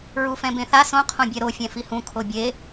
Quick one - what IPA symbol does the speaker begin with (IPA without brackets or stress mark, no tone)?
ɹ